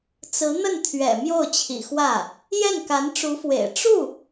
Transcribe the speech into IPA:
t͡sɹ̩˧˥ n̪ə˥˩nt̪ʰɥɛ̰˨˩ mjo˥˩ʊ̯t͡ɕʰḭ˨˩xwä˥˩ | jɛ˥˩nka˧˥nʈ͡ʂu˧˥fwḛ˨˩ɪ̯ ʈ͡ʂu˥˩

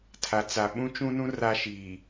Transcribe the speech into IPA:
tʰa˨t͡sa˨ ɓũ˦t͡ʃũ˦nũ˦ ra˦ʃiː˨

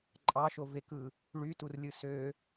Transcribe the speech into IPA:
ǃʼɑʃovekɯ | ɭyturlʲɯ sø

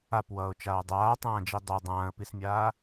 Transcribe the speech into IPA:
apwʌːʊ̯t͡ʃaː dˤaːtˤãːd͡ʒi dˤɐ dˤãːə̯pismʲaː

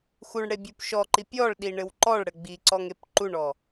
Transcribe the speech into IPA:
xuɳɽebʲup ʃɔǃi pʲɔɭɗiɳɘw ǃɔɭɽɘ ɡ͡biǀɔŋep ǃuɳɔ

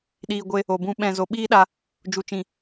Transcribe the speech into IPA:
ɗiː˨ɡʷe˧ | o˨bũ˧ ɓɛ̃˨zo˨ ɓiː˦ɗa˧ | d͡ʒu˨t͡ʃĩ˨

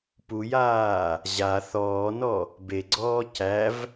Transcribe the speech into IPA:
pujaː | ʑa θɔːnɔ | beɡ͡ǀɔː cæv

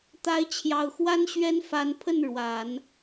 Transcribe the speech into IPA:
t̪a˧˥ɪ̯t͡ɕʰjɑ˨˩ʊ̯xwa˥n ɕɥɛ˥nfa˧˥n pʰə˥˩n ɻwa˨˩˦n

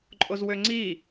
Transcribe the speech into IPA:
ǃʼozwøŋ͡ǀi

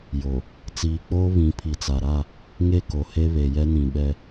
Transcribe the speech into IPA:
jo˨ | t͡siː˨k͡poː˦ βĩ˨˦pʰi˨t͡sa˨ɾa˦˨ | ŋe˦˨ko˨he˦ βe˨jɛ˦nĩ˨ɓɛ˦

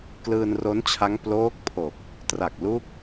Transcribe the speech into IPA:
klɯː˧nro˦˥nt͡ɕʰa˦˥ŋ ploː˦˥k̚pʰo˨˩k̚ | tra˨˩k̚lu˦˥k̚

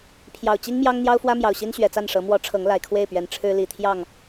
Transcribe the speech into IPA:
pʰjɑ˨˩ʊ̯t͡ɕi˦ŋmjɑ˦ŋ n̪jɑ˦ʊ̯fwä˦ mjɑ˨˩ʊ̯ɕi˦nɕɥɛ˨˩t͡sa˥˨n ʂɤ˨˦ mwɔ˨˦ ʈ͡ʂʰɤ˨˦ŋ la˨˩ɪ̯kʰwe˥˨ɪ̯pɥɛ˨˩n ʈ͡ʂʰɻ̩˦li˨˩t̪ʰjɑ˥˨ŋ

